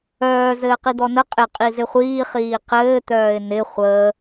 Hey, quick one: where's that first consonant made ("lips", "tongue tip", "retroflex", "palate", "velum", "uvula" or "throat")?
tongue tip